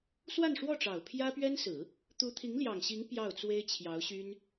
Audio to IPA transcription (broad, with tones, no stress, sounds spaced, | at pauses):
s w a˥˧ n ʂ w ɔ˥˩ ʈ͡ʂ ɑ˨˩ ʊ̯ pʰ j ä˥ p ɥ ɛ˥ n s ɹ̩˨˩˦ | t̪ u˧˥ t̪ʰ i˧˥ ŋ l j ɑ˨˩ ŋ ɕ i˧˥ ŋ p j ɑ˥˩ ʊ̯ t͡s w e˥ ɪ̯ t͡ɕʰ j ɑ˧˥ ʊ̯ ɕ y˥ n